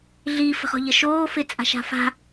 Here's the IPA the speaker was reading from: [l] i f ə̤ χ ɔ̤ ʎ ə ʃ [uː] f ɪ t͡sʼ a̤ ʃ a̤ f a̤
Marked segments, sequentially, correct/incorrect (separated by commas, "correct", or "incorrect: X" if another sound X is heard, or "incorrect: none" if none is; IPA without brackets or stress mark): incorrect: ɮ, incorrect: oː